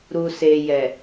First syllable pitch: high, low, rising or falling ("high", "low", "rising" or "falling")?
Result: low